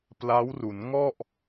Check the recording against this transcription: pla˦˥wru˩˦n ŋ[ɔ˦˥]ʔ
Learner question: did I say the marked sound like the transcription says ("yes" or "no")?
no